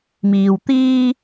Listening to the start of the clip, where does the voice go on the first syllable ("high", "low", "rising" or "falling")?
low